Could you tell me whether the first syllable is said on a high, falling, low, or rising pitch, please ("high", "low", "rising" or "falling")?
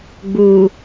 low